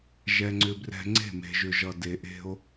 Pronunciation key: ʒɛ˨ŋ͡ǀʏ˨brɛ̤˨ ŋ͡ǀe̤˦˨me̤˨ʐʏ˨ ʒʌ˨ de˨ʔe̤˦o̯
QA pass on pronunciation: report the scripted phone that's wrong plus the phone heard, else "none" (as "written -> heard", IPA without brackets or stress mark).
ʐ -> ʒ